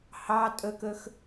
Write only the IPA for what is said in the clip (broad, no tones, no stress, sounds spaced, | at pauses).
h ɑ tʼ ə k ə x